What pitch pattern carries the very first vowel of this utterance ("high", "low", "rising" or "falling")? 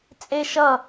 high